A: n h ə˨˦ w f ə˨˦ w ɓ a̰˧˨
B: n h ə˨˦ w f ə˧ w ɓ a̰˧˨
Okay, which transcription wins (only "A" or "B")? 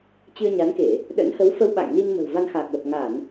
B